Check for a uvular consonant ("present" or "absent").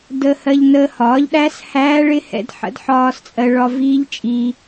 absent